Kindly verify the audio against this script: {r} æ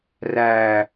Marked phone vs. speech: correct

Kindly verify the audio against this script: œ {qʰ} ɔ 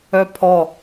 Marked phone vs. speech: incorrect: pʰ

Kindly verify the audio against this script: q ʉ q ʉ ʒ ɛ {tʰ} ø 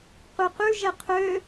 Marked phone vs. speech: incorrect: qʰ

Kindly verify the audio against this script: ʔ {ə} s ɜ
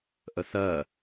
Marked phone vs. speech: correct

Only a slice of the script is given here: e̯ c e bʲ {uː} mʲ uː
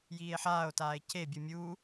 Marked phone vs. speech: incorrect: u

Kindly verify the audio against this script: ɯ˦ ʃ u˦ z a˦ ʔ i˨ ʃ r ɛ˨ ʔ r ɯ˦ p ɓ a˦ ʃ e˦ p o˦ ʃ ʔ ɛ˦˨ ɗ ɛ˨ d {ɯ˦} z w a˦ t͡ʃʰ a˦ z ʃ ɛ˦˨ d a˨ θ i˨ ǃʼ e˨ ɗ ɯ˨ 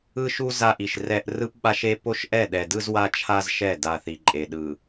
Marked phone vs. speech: correct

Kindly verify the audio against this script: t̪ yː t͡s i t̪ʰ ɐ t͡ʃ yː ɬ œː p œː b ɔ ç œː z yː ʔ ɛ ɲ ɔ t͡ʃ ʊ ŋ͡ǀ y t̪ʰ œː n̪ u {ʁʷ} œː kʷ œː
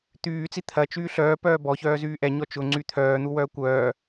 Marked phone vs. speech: incorrect: w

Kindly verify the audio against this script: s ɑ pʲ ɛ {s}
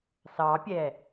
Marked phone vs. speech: incorrect: none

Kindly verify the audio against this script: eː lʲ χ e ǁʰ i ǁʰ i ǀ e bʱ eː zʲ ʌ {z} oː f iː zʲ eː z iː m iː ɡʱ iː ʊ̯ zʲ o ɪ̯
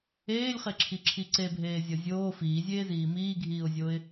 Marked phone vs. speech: incorrect: zʲ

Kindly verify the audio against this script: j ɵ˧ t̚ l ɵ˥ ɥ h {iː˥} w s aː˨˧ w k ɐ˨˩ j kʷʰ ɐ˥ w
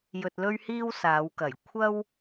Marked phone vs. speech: correct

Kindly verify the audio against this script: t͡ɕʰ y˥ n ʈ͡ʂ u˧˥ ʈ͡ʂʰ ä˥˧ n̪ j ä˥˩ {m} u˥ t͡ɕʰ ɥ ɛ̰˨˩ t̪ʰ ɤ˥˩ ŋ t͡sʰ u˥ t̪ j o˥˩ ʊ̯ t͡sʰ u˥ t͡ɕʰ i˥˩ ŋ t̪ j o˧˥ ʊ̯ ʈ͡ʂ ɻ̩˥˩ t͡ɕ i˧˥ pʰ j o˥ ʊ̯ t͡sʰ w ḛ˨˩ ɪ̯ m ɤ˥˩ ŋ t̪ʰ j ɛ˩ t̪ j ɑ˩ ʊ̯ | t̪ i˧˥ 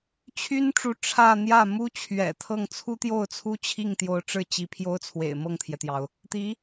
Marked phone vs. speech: correct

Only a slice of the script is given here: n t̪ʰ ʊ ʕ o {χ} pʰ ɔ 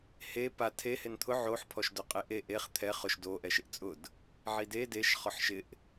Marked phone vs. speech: incorrect: ħ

